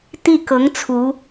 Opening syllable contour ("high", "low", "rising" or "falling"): falling